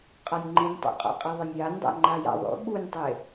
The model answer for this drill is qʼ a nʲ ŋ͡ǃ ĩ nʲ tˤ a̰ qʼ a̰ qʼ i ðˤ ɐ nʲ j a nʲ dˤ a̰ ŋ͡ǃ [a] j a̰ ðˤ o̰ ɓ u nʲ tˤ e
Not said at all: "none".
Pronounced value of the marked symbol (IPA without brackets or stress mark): a